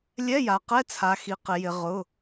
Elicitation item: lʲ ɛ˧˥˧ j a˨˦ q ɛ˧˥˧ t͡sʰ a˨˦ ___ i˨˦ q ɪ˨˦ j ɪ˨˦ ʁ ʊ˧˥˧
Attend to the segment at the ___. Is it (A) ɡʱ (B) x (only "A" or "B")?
B